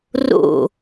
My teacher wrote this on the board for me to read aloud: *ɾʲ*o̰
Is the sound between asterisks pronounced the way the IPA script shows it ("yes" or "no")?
no